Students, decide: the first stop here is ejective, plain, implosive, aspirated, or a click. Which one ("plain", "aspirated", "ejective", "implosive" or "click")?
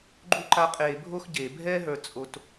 click